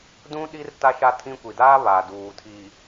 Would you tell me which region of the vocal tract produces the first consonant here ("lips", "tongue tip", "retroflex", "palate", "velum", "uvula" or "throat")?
tongue tip